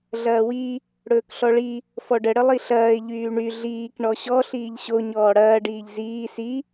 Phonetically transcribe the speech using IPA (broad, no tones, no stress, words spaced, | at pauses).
ɮɐːwi | ɽɵːkɬɔɭi | fɔɖə ɽəlˠiɬɐːɪ̯ ʎyːɳy ɮiːk ɳɔɕɔ ɬiːʎɕo ɲɔːɽɐː ɖiːʎziː si